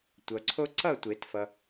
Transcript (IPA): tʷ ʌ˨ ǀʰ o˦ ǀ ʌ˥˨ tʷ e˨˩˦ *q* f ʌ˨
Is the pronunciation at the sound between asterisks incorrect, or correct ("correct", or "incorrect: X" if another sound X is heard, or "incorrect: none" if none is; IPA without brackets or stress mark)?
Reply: incorrect: t